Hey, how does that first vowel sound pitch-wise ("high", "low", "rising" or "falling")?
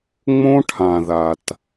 high